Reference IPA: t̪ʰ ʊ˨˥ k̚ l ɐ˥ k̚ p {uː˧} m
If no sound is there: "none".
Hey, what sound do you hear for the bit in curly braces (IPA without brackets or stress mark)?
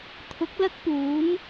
uː˨˥